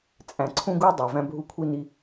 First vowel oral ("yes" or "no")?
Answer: no